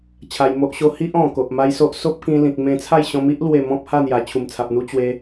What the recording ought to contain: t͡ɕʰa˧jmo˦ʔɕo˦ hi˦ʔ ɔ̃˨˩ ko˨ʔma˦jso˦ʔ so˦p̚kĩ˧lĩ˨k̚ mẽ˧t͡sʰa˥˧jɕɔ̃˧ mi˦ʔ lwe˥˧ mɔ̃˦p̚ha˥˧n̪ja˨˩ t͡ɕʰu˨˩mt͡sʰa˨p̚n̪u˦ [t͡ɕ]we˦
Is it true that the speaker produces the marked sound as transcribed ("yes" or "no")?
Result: yes